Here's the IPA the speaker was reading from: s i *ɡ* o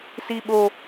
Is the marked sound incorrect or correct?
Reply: incorrect